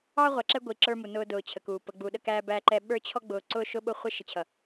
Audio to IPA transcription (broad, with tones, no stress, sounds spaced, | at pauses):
ɑ˦ ʁʷ æ˨ ǁ ɛ˦ ɡʷ i˨ ǁ ə˞˦ m u˨ n ʊː˦ d ʊː˨ t͡ɕʰ ə˨ k uː˨ p ə˨ ɡ͡b u˨ ɗ ə˦ k æː˦ b æ˦ ǃ ɛ˦ ɓ ə˞˦ t͡ɕʰ ɔ˦ ɡ͡b ʊː˨ ǀ ʊː˦ ʃ ʊ˦ ɓ ʊ˦ χʷ ɪ˦ ʃ ɪ˨ t͡ɕʰ ʌ˨